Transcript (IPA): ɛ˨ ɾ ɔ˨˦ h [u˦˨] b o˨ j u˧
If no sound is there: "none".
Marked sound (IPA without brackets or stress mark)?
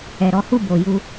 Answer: u˦˨